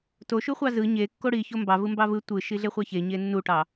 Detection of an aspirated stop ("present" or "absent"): absent